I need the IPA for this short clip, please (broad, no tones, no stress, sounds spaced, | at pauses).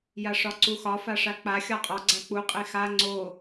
j a ʂ ɒ ǀ u x ɒ f a ʂ a k͡p a xʲ ɒ qʼ ɒ ɡ͡ǀ a k͡p u qʼ e x a ŋ͡ǀ o